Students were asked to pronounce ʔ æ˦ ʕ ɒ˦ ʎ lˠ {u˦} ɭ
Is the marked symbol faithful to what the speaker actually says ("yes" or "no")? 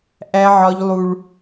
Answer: yes